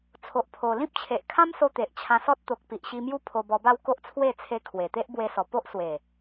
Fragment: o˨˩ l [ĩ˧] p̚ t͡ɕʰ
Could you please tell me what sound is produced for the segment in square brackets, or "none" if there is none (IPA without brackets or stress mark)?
ĩ˦